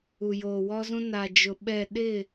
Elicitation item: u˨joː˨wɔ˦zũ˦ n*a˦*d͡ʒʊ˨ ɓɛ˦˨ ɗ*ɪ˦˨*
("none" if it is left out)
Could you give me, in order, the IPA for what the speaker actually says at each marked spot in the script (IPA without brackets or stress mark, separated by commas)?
a˨, ɪ˦˨